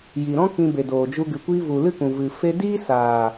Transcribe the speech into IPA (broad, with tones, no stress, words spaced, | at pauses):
ji˨ɾɔ̃˦ kĩ˧be˨doː˨d͡ʒu˧ ɡɨ˨kʷiː˧vu˨ lɨ˦˨kũ˨ vɨ˨ fe˧diː˦saː˨